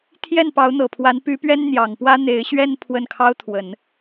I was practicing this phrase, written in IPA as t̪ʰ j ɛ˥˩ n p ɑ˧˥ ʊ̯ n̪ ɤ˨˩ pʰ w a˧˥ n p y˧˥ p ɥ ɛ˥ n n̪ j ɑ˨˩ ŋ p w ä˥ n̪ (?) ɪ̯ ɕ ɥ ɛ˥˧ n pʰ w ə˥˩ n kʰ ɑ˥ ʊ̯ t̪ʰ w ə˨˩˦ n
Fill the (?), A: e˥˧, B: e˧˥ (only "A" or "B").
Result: B